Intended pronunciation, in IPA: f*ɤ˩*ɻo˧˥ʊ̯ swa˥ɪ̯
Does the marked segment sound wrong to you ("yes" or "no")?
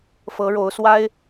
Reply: yes